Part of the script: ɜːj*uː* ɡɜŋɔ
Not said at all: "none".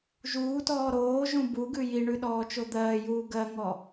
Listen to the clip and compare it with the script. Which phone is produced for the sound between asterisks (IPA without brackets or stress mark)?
uː